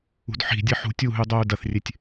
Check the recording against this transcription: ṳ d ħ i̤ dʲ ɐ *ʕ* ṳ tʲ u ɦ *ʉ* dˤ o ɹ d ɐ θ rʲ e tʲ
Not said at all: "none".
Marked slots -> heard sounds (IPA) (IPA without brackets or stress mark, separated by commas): ħ, ʉ